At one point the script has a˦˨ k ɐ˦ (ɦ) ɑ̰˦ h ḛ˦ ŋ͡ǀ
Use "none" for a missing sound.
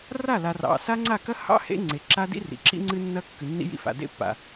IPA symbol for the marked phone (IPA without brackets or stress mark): h